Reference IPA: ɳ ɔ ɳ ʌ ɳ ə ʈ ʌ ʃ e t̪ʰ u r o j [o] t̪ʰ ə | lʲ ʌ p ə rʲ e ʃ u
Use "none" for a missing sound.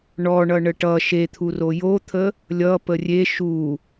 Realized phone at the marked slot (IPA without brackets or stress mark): o